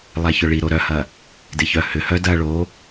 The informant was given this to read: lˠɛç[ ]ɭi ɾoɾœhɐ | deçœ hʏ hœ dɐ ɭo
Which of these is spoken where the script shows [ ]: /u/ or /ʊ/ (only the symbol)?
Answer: ʊ